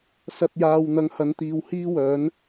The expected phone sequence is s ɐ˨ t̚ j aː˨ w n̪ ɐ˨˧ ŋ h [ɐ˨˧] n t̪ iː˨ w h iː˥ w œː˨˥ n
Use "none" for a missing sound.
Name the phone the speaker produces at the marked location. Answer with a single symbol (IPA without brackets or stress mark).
ɐ˨˧